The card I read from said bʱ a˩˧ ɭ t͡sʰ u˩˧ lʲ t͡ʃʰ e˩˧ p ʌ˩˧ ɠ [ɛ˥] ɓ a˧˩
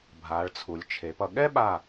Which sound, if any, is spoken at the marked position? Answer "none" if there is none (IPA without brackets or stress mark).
ɛ˥